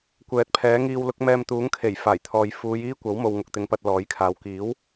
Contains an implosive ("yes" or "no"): no